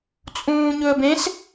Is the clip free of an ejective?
no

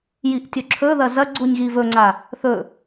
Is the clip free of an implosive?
yes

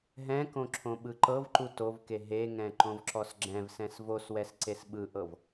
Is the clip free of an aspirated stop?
no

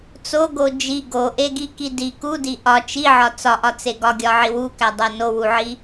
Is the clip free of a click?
yes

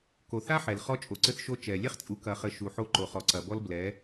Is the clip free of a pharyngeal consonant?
no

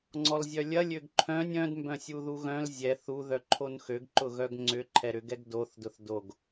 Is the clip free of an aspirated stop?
no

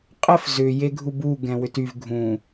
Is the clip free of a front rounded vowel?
no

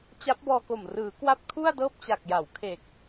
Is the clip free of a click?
yes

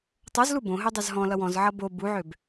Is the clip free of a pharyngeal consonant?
no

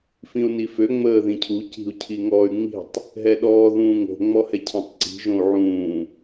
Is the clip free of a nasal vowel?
no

